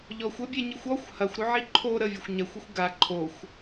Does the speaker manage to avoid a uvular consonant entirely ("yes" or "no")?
yes